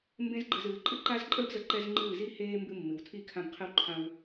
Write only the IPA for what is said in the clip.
mbẽ˦zɡ͡ǃɨ˧zɨː˨˦ ǃʼɨ˦ǃa˦zǃʼəː˦bzə˧ ǃɛ˧z ŋ͡ǃɨː˦˨zi˦heː˦ mbɨ˧mːɨ˨wtʰi˦˨ kʰã˧bqʰɨ˧wǃʰã˧w

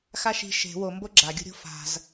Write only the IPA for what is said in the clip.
xaʃi̤ ʃe̤ wombo ɡ͡ǁaɡʲṳɾʲo̤ fa̤z

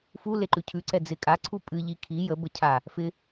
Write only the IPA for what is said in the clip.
fuleǃʉ cʰʉǀɛ d͡zɪ kʼaǀʰu pʼɨʎi kʰi jəbə cʰa | fɪ

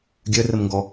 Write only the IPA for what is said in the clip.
ɡʲœrəmŋɡɔ

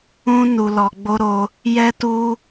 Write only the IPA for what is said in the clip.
ũ˦ nu˧lɔ˧ɡ͡bo˦ɾo˦ | jɛ˦tu˦

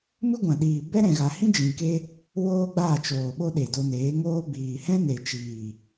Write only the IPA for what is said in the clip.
mɨ˦ɡʷã˨ɗiː˨ bɛ˦ɾɛ̃˨ɣa˨hĩ˦ d͡ʒĩ˨ ke˦ | woː˦ɡ͡baː˦˨t͡ʃoː˨ ɓo˦ɗe˨do˧neː˨˦ ŋoː˧biː˨hɛ̃˦ ne˨ t͡ʃiː˨

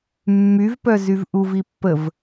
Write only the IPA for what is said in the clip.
mːyvpœ zyvʔuv ipːəv

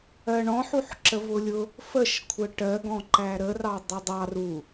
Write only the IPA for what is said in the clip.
ɜɳɔ̃ ħuħǁəvʊlʲʊ | fəʃkʷʰə ʈɜɡɔ̃ ǃæɾərɑ dˤʊdˤɑ ru

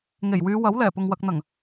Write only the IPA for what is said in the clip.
ŋe˨˩jwyː˨˧ wɐ˨˥wlɛː˨˩pʊ˨ŋ wɐ˨k̚n̪ɐ˨˩ŋ

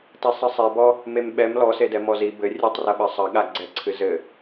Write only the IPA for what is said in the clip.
tɛsˤɨsˤe bɔ | memɓɛm lɔsedɛ mɔzi bɘ rʲɨtˤrɐɓɐ sˤɐ ɠaɡ͡ǀɛǀʰɨ zɘ

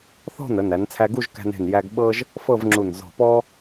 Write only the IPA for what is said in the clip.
θɔ̤˥˧nə˩˧næ˩˧n t͡sʰæ˧ɡu˥˧ʒkæ̤˧ne̤˧˩n jæ˧ɡ ɓɤ˥ʒ | fɤ˥˧vŋ͡ǁu˧˩n zɔ̤˧˩pɔ˥

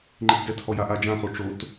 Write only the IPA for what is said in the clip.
ŋ͡ǃitdɛthɔ jaʔad͡ʒãχo ʈ͡ʂot

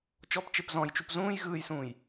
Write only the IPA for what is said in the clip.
t͡ʃɔp t͡ʃepzɔ̃jt͡ʃup zũːj ɣɯːjsũːj

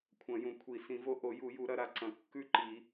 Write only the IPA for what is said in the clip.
kʷʰɐ̃˨˩˦jũ˨kʷʰi˨˩˦ sĩ˨˩˦vo˦˥ ʔo˨˩˦ ju˨˩˦ju˨˩˦ɾɐ˨˩˦ ɾa˨ǀɐ̃˨˩˦ kːʉ˥˨ǃi˨˩˦

